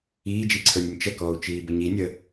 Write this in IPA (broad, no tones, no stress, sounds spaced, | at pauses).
iː d͡ʒ i ǀʰ ə˞ nʲ ə nʲ t͡ʃ ə k ɔː u̯ t͡ʃ iː b ə ɲ i nʲ ə